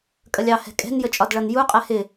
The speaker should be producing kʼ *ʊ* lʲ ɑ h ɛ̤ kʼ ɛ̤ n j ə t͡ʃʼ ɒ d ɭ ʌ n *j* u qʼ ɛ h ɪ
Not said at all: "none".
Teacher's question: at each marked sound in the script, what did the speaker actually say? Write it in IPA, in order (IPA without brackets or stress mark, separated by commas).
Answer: ə, j